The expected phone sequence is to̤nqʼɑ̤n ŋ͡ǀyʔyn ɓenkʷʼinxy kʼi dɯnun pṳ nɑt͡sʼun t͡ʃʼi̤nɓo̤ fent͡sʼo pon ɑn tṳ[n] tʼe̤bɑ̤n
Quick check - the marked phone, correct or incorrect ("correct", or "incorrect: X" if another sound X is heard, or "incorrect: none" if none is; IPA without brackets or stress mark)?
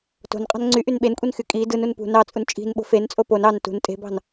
correct